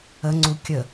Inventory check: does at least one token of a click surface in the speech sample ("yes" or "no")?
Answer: yes